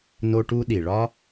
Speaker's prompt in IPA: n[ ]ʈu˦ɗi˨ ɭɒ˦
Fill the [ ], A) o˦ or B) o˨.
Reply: A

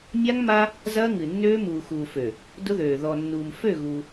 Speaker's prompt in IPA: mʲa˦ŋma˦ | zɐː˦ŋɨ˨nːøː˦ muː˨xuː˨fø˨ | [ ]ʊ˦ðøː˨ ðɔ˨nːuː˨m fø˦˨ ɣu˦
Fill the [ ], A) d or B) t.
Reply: A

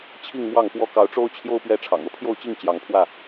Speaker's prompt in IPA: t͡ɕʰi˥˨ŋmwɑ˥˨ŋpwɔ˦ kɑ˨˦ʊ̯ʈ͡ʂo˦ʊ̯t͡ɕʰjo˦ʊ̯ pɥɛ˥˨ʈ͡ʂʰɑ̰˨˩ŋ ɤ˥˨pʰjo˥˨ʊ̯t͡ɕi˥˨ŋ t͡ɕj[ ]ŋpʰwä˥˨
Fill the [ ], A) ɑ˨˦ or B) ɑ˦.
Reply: A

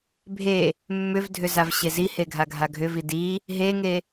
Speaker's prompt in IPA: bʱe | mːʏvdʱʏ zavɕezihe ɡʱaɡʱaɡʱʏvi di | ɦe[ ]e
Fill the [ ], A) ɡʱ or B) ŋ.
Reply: B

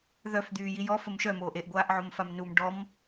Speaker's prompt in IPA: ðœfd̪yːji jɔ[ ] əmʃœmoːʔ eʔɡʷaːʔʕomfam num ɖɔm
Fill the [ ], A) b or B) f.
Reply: B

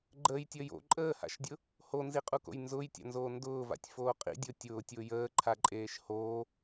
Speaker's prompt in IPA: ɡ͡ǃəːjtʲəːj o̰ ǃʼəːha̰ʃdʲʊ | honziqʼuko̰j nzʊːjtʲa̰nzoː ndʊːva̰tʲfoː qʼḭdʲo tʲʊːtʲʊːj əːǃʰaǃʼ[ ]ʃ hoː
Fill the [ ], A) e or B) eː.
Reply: B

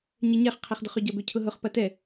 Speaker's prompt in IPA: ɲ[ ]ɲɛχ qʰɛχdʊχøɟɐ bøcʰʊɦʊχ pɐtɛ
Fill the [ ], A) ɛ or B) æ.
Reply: A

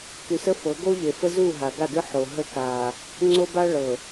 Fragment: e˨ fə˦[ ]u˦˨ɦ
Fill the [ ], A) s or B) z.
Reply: B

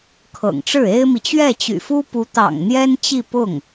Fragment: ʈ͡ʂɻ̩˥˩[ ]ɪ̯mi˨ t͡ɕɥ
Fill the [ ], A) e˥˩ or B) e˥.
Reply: B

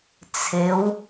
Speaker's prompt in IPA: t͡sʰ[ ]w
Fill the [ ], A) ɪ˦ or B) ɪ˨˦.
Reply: B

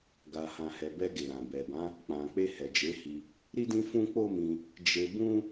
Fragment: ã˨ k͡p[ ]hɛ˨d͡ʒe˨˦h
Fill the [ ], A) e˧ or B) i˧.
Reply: A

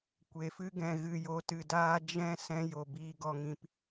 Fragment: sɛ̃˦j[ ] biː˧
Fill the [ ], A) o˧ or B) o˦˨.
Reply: A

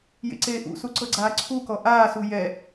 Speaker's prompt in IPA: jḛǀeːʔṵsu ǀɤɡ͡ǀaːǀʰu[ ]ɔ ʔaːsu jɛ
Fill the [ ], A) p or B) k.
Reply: B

